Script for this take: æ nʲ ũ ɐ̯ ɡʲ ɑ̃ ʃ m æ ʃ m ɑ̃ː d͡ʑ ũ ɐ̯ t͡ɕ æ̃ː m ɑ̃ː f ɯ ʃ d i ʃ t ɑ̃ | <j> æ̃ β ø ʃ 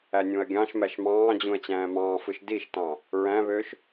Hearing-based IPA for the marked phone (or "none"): ɹ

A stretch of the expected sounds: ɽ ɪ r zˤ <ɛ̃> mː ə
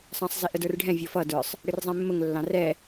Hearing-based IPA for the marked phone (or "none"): ɛ̃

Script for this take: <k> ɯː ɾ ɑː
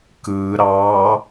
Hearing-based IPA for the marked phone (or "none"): k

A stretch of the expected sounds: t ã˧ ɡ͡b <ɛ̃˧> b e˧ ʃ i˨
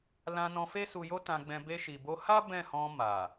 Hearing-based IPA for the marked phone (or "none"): ɛ̃˧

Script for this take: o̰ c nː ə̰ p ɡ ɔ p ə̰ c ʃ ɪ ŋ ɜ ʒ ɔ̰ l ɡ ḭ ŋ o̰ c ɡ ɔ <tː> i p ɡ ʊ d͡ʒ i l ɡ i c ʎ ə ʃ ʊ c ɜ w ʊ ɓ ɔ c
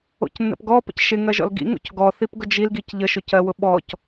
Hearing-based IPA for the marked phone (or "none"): θ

